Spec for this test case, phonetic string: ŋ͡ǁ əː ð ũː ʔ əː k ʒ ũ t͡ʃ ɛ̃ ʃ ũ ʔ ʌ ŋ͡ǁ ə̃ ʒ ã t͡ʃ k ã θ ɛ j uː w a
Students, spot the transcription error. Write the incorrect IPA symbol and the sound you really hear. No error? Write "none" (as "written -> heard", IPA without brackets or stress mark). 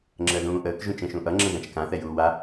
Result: none